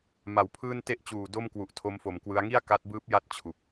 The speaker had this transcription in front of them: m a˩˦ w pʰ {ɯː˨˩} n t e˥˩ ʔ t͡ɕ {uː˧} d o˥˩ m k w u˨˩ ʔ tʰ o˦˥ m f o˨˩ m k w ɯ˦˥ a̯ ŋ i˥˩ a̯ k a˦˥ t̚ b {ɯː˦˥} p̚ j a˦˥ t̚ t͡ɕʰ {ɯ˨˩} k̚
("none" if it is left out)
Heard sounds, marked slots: ɯː˥˩, uː˨˩, ɯː˦˥, u˨˩

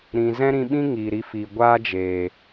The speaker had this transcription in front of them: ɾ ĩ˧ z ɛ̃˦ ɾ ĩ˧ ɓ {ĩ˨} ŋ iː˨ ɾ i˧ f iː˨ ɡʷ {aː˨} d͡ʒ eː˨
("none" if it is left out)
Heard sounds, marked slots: ĩ˦, aː˦

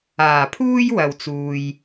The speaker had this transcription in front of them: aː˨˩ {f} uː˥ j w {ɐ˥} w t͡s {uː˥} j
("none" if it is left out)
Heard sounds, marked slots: pʰ, ɐ˨, uː˨

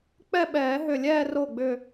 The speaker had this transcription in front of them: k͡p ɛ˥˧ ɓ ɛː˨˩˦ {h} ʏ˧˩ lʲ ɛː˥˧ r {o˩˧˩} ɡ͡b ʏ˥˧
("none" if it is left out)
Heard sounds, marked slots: ɦ, o˥˩

